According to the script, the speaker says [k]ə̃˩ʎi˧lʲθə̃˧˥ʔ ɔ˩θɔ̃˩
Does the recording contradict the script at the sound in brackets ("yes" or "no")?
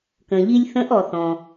no